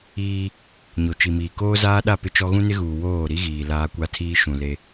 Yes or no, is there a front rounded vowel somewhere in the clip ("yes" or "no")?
no